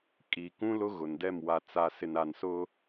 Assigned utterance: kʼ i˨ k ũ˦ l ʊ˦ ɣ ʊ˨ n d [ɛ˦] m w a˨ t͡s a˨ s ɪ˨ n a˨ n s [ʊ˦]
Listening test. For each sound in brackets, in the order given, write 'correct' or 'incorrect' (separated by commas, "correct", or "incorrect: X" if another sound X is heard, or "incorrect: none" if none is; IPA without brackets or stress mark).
incorrect: ɛ˦˨, correct